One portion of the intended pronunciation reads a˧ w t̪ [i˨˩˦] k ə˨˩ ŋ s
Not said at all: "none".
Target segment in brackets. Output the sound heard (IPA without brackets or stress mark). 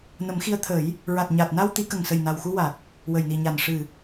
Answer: i˨˩˦